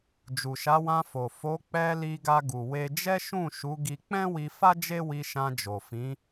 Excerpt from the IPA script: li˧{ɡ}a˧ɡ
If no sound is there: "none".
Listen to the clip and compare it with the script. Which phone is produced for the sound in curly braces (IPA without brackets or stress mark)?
ɡ